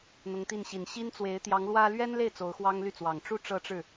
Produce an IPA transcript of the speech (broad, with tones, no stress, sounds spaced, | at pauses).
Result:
n̪ ʊ˧˥ ŋ t̪ i˥˩ n ɕ i˨˩ n ɕ i˥ n t͡s w e˧˥ ɪ̯ t̪ j ɑ˧˥ ŋ l w ä˥ l ɥ ɛ˥ n l e˥˩ ɪ̯ t͡s o˧˥ ʊ̯ x w ɑ˥ ŋ l y˥˩ t͡s w ɑ˨˩ ŋ ʈ͡ʂ u˥˧ ʈ͡ʂ ɤ˥˧ ʈ͡ʂ ɻ̩˥˩